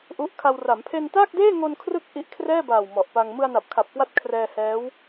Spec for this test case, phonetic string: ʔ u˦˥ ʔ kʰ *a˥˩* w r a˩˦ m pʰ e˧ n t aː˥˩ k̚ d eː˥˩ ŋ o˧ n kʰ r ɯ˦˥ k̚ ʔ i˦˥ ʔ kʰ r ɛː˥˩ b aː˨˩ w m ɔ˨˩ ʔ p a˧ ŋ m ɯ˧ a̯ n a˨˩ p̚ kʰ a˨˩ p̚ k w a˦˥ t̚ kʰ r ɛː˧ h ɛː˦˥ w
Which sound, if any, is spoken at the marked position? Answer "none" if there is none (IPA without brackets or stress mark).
a˧